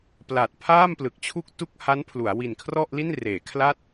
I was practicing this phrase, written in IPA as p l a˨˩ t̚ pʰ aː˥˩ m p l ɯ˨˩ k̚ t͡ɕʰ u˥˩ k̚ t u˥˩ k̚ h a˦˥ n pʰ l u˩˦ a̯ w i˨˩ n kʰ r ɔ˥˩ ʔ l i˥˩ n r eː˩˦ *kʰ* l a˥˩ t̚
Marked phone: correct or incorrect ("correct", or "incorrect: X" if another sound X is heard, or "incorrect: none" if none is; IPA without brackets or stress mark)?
correct